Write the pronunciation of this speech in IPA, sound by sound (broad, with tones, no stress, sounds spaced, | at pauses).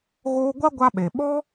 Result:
ɣ oː˦ ɡʷ a˦ ɡʷ a˧ ɓ e˨ ɓ ɔ˦